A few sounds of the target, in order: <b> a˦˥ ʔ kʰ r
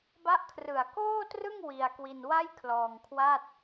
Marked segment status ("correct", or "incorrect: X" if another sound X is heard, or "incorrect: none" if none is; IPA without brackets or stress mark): correct